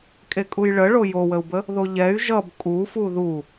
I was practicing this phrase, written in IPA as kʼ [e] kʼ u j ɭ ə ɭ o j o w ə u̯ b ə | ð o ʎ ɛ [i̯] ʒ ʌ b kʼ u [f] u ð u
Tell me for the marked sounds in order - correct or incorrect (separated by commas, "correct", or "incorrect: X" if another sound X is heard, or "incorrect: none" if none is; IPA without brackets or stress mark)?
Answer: correct, incorrect: y̯, correct